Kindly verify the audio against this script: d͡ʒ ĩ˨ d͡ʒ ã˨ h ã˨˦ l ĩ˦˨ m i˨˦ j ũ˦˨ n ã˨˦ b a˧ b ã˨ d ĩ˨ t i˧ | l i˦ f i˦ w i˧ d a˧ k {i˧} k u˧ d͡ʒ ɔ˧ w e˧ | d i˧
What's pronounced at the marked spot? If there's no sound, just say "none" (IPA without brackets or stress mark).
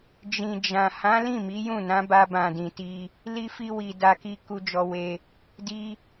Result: i˧